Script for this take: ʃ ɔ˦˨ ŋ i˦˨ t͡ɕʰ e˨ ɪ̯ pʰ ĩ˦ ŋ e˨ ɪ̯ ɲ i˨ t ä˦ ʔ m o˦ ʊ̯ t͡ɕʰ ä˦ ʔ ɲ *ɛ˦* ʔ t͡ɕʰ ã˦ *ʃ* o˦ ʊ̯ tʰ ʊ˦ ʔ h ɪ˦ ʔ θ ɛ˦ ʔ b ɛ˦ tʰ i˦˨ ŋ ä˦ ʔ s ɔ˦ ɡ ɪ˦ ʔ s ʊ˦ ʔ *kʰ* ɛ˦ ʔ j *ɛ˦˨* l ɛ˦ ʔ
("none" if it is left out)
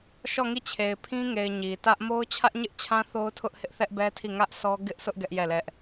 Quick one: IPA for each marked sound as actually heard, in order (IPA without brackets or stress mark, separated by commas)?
ɪ˦, θ, ɡ, ɛ˦˨